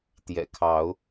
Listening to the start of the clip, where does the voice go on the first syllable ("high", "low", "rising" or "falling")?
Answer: low